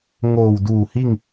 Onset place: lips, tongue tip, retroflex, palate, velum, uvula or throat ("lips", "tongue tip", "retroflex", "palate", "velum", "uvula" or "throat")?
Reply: velum